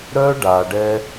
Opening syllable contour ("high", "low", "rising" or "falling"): high